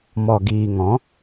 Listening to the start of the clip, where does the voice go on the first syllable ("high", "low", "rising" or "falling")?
low